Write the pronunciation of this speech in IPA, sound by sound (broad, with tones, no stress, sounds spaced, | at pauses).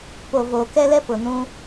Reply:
p o˨ v oː˨ k ɛ˦ l ɛ˦ p ʊ˨ n ũ˦